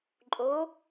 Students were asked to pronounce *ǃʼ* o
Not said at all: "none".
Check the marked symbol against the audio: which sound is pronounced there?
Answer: ǃʼ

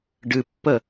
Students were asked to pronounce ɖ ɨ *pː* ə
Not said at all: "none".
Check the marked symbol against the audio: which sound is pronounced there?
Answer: pː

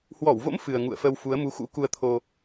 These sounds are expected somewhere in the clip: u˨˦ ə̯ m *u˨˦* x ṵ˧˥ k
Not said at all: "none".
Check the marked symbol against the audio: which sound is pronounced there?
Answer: u˨˦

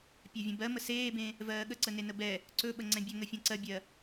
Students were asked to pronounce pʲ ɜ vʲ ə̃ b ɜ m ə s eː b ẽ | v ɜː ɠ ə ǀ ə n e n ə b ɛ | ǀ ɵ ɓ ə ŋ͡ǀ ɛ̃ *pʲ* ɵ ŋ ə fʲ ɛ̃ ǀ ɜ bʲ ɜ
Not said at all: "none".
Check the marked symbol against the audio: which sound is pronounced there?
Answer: bʲ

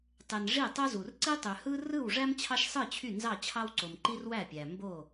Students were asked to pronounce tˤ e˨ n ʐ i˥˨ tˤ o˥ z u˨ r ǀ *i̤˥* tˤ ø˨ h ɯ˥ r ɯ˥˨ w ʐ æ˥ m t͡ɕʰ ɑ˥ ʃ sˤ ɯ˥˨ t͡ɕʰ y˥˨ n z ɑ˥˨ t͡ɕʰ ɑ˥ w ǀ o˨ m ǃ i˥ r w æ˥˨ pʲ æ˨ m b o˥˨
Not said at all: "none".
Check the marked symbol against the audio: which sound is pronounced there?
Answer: i˥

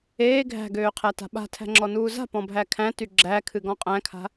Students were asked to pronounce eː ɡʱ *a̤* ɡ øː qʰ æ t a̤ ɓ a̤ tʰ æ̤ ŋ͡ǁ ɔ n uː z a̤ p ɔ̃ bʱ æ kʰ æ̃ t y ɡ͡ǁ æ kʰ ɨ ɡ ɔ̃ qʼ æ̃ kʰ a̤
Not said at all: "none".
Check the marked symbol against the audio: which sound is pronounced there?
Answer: æ̤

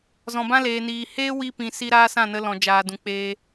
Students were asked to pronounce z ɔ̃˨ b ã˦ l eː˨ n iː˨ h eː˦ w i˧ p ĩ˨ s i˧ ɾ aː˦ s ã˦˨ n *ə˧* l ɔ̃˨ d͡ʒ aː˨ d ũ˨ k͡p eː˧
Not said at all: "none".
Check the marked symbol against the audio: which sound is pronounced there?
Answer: ə˧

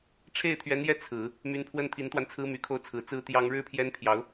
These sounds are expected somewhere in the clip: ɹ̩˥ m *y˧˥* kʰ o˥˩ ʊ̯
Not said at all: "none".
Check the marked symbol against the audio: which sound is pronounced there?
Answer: y˨˩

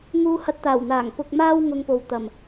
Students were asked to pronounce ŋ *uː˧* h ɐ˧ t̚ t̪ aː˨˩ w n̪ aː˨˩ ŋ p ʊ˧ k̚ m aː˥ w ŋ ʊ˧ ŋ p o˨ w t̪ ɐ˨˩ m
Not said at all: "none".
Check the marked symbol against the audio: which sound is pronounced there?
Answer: uː˧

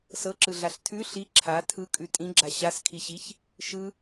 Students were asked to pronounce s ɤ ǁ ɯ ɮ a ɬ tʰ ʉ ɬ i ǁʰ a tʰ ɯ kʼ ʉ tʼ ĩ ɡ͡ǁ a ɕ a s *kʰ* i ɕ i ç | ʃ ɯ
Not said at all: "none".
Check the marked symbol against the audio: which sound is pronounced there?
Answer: kʰ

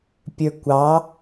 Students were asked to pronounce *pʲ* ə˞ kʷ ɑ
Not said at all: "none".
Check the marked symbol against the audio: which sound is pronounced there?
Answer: pʲ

